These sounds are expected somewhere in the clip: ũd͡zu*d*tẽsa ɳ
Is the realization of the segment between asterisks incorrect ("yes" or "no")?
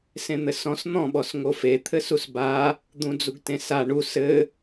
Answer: yes